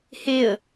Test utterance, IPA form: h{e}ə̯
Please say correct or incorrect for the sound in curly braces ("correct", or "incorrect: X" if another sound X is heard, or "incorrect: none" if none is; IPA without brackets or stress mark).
correct